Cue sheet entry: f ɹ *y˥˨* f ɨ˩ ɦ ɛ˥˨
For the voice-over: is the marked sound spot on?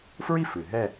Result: no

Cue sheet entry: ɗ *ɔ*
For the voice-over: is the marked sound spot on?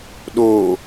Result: no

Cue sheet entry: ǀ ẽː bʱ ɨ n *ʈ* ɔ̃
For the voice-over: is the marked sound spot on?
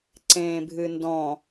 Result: no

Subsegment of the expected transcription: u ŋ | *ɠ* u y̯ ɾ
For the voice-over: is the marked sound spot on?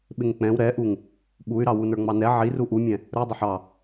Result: no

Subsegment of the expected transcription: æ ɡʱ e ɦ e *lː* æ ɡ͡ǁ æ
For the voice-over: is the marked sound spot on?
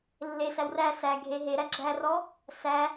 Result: no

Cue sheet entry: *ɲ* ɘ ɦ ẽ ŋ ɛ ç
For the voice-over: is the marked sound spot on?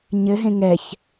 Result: yes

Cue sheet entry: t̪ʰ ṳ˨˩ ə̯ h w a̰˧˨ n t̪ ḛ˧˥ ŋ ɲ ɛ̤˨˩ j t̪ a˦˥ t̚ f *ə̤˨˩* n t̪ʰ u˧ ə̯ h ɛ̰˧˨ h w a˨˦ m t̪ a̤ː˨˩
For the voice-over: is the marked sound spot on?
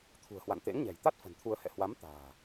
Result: yes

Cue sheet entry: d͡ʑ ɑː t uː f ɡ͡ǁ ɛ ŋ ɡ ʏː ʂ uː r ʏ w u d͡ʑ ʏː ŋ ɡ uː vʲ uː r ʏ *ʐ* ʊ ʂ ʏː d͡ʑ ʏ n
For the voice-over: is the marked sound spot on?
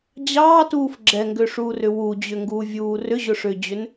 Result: no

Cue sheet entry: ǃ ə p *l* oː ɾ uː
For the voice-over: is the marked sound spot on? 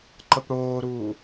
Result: no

